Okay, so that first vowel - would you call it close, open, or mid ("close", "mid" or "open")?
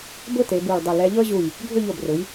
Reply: close